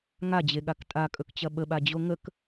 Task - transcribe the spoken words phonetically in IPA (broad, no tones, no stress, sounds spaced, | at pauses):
ŋ a d͡ʑ e ɠ a k tʼ a kʼ ɵ k t͡ɕ ɐ ɓ ə ɓ a d͡ʑ o ŋ ə k